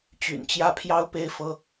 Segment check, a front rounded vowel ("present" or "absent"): present